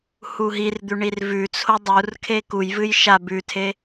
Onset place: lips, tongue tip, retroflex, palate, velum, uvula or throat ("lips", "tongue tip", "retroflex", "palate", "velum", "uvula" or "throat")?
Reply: throat